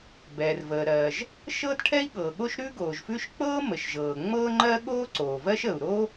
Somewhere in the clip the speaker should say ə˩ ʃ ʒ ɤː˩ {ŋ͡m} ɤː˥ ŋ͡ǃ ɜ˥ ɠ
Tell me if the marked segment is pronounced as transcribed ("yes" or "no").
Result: yes